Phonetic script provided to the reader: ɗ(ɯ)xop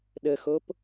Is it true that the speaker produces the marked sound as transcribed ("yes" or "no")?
no